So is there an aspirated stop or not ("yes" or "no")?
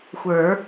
no